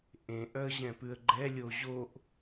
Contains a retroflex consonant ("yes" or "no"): no